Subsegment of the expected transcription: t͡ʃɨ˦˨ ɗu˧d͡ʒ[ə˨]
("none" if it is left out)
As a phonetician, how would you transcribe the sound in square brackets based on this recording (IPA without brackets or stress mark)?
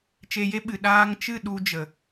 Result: ə˨